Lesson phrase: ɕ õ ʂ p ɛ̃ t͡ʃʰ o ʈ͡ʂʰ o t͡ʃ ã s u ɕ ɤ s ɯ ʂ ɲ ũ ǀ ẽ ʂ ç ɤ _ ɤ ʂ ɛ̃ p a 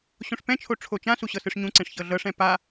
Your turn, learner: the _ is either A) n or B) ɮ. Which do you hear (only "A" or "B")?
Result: B